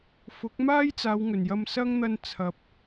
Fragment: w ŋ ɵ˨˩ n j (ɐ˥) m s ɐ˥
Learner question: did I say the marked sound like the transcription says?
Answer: no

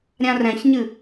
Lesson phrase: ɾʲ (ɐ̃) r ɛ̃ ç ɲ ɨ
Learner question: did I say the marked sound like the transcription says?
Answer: no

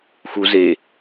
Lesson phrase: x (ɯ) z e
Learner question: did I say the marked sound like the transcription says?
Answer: no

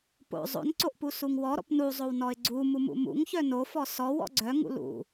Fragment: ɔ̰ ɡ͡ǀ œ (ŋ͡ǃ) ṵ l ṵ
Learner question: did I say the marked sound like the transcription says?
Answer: no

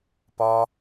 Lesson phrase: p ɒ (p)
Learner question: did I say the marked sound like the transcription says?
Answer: no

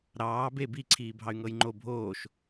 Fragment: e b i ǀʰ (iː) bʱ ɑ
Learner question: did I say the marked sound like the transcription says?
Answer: yes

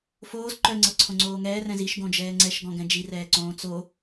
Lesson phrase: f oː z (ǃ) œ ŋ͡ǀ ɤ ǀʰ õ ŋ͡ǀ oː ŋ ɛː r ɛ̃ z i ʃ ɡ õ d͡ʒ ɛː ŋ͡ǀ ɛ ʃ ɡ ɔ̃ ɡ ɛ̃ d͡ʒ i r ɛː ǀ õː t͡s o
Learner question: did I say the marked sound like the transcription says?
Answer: yes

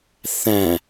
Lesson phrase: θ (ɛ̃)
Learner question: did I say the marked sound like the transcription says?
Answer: no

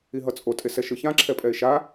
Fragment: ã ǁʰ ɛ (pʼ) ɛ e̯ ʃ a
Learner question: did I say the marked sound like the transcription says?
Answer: yes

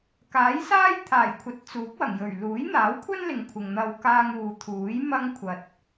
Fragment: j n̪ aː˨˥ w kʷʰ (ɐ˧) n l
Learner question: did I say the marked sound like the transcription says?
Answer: no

